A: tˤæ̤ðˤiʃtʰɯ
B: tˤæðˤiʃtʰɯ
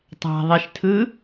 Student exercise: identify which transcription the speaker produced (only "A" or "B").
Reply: A